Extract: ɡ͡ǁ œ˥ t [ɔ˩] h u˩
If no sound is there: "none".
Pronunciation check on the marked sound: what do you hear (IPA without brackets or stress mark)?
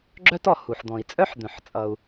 ɔ˩